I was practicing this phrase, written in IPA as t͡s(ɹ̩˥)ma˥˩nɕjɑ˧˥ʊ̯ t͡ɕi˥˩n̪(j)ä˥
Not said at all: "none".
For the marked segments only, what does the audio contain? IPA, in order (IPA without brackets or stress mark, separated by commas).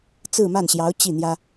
ɹ̩˥˧, j